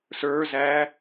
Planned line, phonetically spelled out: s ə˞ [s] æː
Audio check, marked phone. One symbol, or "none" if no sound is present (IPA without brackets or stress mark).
z